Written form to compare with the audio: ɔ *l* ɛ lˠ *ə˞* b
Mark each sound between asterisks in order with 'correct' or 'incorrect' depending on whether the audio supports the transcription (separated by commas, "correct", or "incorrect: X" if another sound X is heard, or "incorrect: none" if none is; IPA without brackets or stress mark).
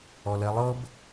correct, incorrect: ɤ